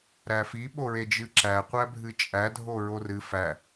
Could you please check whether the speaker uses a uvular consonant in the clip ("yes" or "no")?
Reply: yes